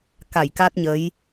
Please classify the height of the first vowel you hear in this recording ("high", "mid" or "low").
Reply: low